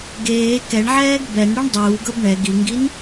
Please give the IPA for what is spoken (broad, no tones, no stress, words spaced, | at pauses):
ɡeː kɛɳʕɛːɡ bɛn ɽuɳdˤuːɡɤb ɳɛ ɡiŋɡin